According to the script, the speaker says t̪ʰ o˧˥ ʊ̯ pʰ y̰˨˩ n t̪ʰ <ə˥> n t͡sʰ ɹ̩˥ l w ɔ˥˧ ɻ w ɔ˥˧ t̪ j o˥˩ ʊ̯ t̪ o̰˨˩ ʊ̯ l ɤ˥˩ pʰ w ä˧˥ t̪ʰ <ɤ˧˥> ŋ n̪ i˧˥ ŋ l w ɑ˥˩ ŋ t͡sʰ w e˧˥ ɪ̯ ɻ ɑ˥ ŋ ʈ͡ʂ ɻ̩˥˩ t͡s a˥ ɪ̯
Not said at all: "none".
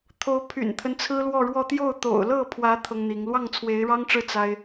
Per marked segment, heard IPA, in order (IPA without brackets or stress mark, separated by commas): ə˦, ɤ˥